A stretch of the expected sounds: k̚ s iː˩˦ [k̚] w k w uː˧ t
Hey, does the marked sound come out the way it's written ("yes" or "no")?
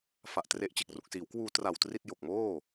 no